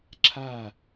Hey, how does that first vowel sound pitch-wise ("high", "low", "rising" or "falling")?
falling